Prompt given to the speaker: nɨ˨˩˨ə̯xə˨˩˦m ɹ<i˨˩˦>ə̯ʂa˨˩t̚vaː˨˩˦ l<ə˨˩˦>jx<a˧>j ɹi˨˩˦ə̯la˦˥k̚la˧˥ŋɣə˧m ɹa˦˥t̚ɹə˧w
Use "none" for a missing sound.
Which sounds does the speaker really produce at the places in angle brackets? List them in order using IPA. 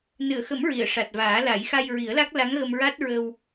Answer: i˨˩˨, a˨˩˦, a˧

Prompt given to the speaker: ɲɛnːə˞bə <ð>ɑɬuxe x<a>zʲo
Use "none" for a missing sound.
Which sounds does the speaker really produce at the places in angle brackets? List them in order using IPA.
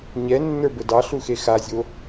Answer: d, a

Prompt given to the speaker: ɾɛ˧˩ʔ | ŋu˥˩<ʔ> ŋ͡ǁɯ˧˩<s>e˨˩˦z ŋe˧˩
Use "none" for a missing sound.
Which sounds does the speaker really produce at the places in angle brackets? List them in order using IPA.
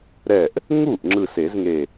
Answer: ʔ, s

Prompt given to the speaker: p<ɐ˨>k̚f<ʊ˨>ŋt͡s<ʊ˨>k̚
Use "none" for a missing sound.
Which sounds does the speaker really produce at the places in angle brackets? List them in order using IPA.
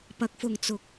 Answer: ɐ˨, ʊ˨, ʊ˨

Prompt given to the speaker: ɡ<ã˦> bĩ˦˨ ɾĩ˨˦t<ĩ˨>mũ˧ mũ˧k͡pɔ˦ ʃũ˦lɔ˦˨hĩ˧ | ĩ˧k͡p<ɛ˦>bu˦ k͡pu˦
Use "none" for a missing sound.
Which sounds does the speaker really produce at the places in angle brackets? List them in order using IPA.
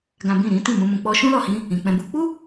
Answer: ã˦, ĩ˦˨, ɛ̃˦

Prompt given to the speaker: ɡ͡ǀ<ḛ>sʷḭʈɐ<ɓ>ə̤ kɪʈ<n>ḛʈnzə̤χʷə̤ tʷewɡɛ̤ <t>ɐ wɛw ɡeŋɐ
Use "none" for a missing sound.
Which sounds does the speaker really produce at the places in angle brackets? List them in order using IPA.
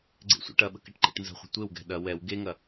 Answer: ḛ, ɓ, ǃ, ɗ

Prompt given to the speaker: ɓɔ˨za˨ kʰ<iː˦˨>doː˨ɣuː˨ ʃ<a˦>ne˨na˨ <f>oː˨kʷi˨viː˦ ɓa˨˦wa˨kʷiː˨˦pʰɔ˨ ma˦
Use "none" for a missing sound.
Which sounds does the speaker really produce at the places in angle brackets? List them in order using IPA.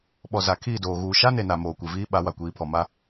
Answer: iː˦˨, a˦, m

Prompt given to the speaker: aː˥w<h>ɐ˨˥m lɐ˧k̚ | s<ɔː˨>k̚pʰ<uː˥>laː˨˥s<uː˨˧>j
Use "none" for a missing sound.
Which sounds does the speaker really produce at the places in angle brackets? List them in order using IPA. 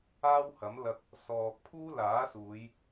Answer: h, ɔː˨, uː˥, uː˨˧

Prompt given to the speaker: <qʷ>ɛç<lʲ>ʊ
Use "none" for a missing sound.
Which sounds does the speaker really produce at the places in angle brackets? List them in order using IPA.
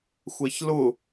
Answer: xʷ, l

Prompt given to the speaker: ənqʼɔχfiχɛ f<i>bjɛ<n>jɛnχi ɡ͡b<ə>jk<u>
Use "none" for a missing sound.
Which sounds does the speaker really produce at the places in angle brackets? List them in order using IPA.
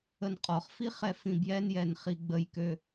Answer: ĩ, n, ə, ø

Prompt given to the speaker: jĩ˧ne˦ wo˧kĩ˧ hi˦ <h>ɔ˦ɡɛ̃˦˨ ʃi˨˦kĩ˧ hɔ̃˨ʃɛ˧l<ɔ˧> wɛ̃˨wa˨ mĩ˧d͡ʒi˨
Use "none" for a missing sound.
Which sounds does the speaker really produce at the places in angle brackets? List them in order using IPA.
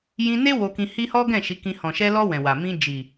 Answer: h, ɔ˧

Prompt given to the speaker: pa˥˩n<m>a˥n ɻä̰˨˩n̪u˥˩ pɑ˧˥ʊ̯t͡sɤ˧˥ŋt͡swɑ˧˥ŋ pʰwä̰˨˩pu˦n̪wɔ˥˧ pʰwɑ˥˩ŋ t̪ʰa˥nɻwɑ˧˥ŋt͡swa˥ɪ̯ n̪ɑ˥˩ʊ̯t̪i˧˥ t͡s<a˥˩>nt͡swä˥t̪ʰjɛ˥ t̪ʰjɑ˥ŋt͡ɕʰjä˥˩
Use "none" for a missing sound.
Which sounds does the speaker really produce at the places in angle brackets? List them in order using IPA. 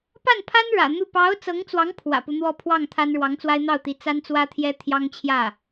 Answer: pʰ, a˥

